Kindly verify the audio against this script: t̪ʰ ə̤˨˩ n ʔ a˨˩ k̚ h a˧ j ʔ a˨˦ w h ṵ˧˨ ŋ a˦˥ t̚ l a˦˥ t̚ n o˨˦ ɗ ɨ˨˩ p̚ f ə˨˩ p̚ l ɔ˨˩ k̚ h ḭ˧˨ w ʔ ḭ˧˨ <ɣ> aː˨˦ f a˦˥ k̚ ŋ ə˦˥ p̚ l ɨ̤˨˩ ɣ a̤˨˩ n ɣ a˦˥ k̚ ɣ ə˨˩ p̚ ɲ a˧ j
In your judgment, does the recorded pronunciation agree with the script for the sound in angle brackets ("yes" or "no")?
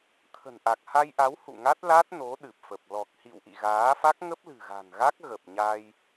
yes